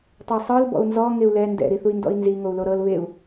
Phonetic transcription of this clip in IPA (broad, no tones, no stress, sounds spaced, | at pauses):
tˤ ɛ sˤ ɯ l b ɔ̰ u̯ n z ɔ ŋ e u̯ l ɛ n d ɛ̰ ɾ i θ u i̯ n d ɔ̰ i̯ n z i ŋ o u̯ l o ɾ ɤ l β e u̯